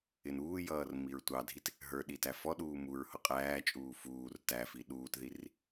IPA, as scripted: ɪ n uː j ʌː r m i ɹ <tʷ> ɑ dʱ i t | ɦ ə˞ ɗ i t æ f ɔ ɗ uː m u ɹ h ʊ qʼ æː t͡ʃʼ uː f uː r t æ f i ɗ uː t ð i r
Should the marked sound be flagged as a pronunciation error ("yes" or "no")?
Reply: no